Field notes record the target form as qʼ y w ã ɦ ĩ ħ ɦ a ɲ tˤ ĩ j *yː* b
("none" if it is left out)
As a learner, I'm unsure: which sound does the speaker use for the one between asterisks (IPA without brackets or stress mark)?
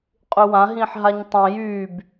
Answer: yː